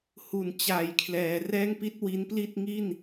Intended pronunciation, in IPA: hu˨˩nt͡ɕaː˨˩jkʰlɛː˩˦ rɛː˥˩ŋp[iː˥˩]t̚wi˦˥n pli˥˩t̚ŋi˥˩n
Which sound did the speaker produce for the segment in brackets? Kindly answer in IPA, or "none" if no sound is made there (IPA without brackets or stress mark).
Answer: i˥˩